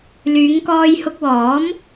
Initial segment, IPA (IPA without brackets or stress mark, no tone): l